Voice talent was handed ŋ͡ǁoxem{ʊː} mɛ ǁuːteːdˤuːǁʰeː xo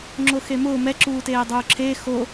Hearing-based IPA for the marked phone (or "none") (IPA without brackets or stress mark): ʊː